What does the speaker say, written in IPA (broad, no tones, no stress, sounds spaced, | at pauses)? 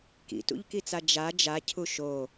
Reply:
k ḭ t ṵ ʎ k i t͡s a d͡ʒ a d͡ʒ a cʰ u ʃ o